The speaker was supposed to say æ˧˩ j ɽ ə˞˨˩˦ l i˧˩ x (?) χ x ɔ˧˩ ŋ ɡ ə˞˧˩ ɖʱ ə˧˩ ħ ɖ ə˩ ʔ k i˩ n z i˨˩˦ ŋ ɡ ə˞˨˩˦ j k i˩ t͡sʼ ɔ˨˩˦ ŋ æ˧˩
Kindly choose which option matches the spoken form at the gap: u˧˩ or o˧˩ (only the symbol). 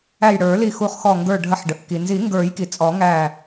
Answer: u˧˩